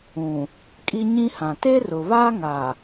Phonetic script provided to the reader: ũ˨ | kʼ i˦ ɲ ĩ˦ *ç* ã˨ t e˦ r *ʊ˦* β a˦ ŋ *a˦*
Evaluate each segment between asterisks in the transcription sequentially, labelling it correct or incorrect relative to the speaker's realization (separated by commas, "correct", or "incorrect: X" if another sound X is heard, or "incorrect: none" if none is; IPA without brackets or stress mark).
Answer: incorrect: h, incorrect: ʊ˨, incorrect: a˨